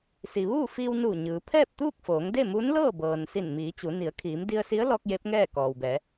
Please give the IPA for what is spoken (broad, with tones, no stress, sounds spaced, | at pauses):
s i˩ ʋ uː˥˨ f iː˧ w n u˧˩ ɲ ɯː˩˧ pʰ ɛː˥˨ p̚ t̪ uː˥˨ k̚ f oː˩˧ ŋ d e˥˨ m u˧˥ n l ɤː˥˨ b ɤː˩ n s i˧˩ n m iː˩˧ t͡ɕ u˩˧ n i˩˧ ə̯ kʰ iː˩˧ m d i˧ ə̯ s i˧˥ ə̯ l ɔː˧ k̚ j e˧˥ p̚ ŋ ɛː˥˨ k ɔː˩ w b ɛː˩˧